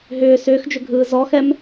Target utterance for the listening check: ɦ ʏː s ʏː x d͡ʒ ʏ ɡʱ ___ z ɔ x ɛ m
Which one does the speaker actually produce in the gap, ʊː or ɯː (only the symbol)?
ɯː